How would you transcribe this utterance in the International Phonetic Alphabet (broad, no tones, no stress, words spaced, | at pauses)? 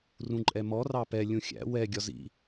rũǃʼɛmɔ rɑpɛ lʲũxʲæ̰ wɛ ɡʲɒzḭ